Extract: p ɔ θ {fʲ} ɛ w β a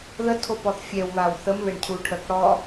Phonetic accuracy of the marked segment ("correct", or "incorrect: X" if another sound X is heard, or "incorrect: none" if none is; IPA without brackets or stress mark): correct